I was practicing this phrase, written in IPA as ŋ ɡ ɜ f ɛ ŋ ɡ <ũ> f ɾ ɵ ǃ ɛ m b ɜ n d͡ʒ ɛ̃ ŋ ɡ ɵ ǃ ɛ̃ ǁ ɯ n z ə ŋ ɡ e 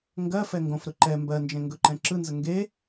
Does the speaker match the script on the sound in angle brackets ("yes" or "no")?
no